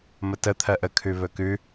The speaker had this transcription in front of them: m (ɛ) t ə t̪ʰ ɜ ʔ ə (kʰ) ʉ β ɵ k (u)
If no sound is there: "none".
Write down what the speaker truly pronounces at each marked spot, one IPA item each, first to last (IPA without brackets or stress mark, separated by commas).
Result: ə, kʰ, ʉ